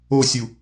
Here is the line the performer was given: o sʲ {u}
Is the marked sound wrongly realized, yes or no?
no